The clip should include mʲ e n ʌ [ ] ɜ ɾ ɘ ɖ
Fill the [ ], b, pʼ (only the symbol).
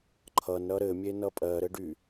pʼ